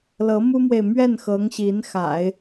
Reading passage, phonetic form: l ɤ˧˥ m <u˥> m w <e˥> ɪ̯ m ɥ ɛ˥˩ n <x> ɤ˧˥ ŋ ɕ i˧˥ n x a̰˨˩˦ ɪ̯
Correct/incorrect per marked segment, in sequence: correct, incorrect: e˨, correct

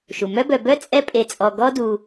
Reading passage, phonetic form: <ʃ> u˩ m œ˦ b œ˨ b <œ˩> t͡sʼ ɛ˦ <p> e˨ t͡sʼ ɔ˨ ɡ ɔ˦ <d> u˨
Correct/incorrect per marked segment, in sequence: correct, incorrect: œ˦, incorrect: pʼ, correct

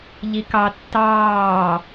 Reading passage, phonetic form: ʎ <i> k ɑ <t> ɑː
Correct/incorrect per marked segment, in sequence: correct, incorrect: tː

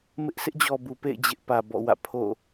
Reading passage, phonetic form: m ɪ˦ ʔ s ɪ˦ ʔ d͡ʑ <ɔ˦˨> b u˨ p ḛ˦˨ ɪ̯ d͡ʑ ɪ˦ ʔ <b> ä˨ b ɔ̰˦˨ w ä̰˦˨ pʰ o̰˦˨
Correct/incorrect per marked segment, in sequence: incorrect: ɔ˨, incorrect: p

